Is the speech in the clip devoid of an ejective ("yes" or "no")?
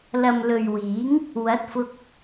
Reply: yes